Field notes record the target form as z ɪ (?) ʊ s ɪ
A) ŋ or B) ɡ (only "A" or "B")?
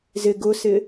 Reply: B